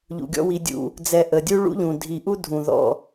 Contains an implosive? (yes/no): no